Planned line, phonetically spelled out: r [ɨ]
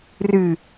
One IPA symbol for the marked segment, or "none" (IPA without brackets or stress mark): ɨ